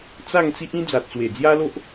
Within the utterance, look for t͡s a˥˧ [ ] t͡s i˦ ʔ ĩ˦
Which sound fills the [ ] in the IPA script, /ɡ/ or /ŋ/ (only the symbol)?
ŋ